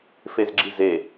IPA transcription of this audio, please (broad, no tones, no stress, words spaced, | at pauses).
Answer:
fezɡ͡ǁize